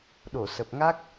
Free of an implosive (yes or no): no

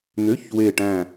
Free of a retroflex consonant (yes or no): no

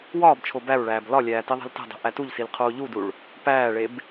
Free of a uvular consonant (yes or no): no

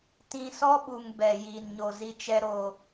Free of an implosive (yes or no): no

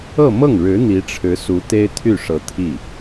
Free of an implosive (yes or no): yes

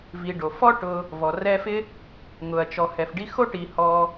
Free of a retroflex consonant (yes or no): no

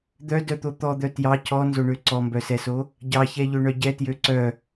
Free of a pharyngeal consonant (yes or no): yes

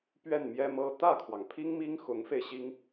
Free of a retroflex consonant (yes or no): yes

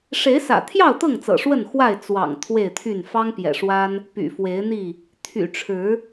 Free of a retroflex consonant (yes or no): no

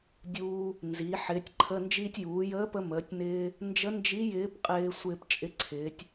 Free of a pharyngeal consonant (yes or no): no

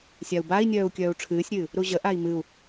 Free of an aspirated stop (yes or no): no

